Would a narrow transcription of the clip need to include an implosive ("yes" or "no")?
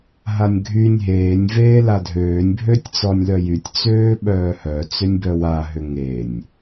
yes